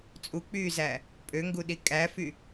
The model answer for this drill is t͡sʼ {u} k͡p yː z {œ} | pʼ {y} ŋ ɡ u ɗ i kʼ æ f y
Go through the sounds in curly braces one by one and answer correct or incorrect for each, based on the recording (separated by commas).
correct, incorrect, incorrect